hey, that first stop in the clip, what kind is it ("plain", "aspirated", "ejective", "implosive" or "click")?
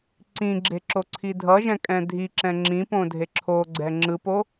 click